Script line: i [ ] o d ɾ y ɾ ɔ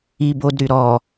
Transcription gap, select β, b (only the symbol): b